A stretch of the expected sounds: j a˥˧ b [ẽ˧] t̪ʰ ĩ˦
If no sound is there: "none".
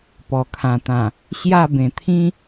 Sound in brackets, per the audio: ẽ˨˩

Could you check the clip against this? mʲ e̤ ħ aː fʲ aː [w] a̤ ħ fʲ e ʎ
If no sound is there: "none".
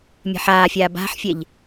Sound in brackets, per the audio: b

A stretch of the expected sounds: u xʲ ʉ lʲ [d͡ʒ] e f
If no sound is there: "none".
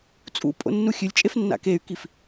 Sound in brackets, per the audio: t͡ʃʼ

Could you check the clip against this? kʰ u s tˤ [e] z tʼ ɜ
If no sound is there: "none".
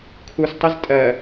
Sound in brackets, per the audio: e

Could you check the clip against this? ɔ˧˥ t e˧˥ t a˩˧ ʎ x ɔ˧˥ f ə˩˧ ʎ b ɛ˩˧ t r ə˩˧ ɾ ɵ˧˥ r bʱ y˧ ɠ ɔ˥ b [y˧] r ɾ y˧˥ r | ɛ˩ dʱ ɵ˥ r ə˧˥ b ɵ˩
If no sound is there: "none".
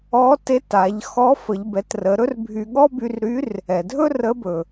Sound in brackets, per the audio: y˧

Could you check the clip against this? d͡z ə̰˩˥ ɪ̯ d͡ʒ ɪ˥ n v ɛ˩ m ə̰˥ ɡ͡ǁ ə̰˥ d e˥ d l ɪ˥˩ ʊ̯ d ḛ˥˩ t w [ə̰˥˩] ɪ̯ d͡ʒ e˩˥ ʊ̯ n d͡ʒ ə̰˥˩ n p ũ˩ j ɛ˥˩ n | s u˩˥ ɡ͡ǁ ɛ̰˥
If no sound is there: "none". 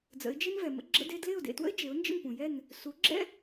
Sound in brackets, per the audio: ə̰˥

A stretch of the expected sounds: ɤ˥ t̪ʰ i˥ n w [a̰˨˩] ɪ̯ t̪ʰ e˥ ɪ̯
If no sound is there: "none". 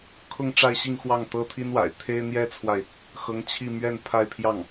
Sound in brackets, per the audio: a̰˨˩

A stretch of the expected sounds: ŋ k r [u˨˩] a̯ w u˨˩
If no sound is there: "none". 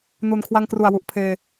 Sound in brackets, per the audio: u˨˩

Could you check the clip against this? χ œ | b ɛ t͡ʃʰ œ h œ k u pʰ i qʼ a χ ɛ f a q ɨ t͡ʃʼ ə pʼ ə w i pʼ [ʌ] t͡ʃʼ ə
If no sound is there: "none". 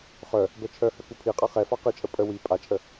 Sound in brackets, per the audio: a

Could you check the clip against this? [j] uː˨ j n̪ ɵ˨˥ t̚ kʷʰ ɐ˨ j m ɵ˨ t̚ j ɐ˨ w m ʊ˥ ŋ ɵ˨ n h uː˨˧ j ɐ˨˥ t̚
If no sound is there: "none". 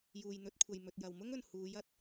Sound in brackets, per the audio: j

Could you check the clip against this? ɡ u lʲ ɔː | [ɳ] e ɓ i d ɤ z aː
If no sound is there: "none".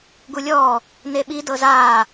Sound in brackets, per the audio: n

